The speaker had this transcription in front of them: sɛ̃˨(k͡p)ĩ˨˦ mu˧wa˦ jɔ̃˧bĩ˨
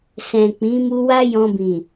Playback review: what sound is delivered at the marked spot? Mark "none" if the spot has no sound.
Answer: k͡p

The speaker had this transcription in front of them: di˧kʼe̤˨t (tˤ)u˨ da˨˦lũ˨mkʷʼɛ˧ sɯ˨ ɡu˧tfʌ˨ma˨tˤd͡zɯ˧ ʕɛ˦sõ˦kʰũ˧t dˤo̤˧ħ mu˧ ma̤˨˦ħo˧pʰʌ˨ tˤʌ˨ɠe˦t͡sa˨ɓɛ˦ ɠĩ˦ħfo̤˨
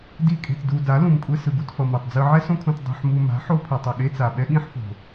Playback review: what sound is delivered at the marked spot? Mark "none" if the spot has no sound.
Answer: d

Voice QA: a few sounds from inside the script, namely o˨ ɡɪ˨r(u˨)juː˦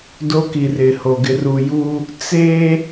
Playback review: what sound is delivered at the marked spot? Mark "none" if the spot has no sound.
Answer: u˨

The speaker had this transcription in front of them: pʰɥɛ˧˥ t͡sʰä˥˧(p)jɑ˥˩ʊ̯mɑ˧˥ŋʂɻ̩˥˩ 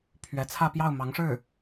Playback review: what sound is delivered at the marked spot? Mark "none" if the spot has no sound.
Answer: p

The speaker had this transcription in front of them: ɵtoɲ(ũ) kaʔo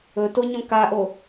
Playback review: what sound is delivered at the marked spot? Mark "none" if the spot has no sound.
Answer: õ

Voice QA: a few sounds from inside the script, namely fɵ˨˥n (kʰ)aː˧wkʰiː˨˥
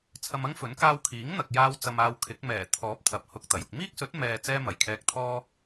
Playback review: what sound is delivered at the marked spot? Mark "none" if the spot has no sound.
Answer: k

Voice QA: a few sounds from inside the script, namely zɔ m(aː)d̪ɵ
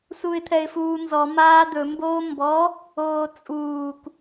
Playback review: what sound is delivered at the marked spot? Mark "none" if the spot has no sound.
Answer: aː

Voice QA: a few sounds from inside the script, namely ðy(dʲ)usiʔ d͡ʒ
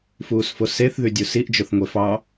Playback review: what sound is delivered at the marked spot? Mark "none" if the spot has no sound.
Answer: dʲ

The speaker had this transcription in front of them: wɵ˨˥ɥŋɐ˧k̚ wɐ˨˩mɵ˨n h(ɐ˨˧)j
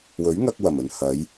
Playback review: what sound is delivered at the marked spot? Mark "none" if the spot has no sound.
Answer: ɐ˨˧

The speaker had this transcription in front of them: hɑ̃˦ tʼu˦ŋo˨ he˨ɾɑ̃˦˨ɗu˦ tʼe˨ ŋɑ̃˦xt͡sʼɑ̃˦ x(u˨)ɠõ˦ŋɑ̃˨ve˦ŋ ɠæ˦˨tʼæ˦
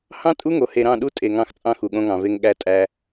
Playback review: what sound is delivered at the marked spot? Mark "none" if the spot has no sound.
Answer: u˨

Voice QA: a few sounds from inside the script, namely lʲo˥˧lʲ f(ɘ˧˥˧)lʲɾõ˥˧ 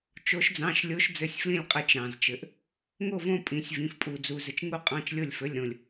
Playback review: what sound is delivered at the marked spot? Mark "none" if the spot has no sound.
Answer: ɘ˧˥˧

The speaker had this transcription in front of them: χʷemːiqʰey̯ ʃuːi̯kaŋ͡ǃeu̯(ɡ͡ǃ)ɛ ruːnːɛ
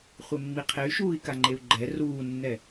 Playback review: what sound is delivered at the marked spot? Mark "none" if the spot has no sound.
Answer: ɡ͡ǃ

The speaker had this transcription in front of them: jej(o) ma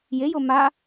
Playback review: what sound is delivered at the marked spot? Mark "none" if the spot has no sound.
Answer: o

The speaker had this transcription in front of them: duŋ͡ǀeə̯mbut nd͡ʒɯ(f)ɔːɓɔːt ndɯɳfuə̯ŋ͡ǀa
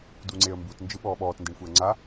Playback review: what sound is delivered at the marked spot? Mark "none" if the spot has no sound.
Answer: ɓ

